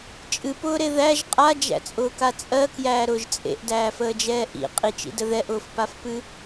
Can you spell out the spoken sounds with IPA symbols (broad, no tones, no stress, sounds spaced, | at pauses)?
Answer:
t͡ʃʼ ɨ p ʊː ɾ e ð æ ʒ qʼ a d͡ʒ æ̰ t͡sʼ ʊː k a t͡sʼ ɜ k j æː ɾ ʊː ʒ t͡sʼ ḛ ʔ d æː f əː d͡ʒ ɛː ʔ ḭ qʼ i t͡ʃ ḭ d ə ð ɛ ʔ ʊː f p a f p ɨ